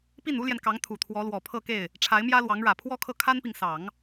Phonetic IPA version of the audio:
pi˥˩nu˥ljɛ˨nkɑ˧˥ŋ t̪ʰu˨˩t̪ʰwɔ˧˥lwɔ˨˩ pʰɤ˥˧ke˥˩ɪ̯ | ʈ͡ʂʰa˧˥ɪ̯mjä˥lwɑ˧˥ŋɻä˨˩ pʰwɔ˥kʰɤ˥˩ kʰa˥npi˨ŋsɑ˨˩˦ŋ

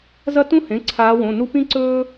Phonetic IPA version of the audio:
zɐ˦tũ˦hẽ˩˧˩ ǀʰaː˨˦wõ˩˧˩nu˦ pĩ˦ǀɵː˦

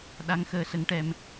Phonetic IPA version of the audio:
ɗa˧ŋxəː˧sə˧˥ŋʈɛ˧m

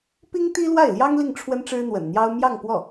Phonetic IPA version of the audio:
pi˥ŋt̪i˥ lwa˥˩ɪ̯ljɑ˥ŋ li˥˩ŋ ʈ͡ʂʰwə˥nʈ͡ʂɻ̩˥n̪wə̰˨˩nn̪jɑ˥ʊ̯ mjɑ˥˧ŋpwɔ˥˩

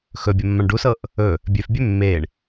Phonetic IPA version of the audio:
xɵbʲɐmːãɳ ɖusɤʔ | ɵ | bʲøfbʲø mːeɳ

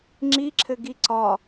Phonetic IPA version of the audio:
ŋ͡ǁiǁʰɘɡi ǀɒ

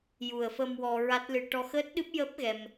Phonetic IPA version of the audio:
ju˨˩ə̯fə˧m wɔ˧ɹa˦˥t̚lɨ˧ ʈɔ˧xəː˦˥t̚ɗɨ˦˥p̚jəː˦˥p̚ ɣɛ˧m

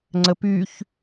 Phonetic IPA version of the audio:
ŋ͡ǀəpyç

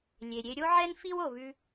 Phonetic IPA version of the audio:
lʲe˨ɾʲe˧ ɾʲo˦ʕɛ˦n fi˦w o˨βʉ˧

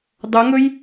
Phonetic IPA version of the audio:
dˤɵŋɵj

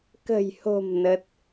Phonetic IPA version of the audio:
kə̤˨˩jho̤˨˩m nə˦˥t̚

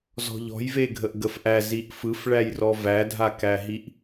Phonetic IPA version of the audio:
zɔ̤ʎɔ̤j veɡʱəʔɡəfʔæ ziʔfɯfɭæjrɔ vædʱakæɦiʔ

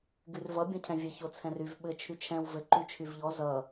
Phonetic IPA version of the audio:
ɡyrvʌ bʲõcʰɛ̃vʲɘ çot͡sʰɛ̃ryv ɓɘ t͡ʃʰyt͡ʃʰɛ̃w vɘ ǃyt͡ʃʰyvʎɔ zʌ

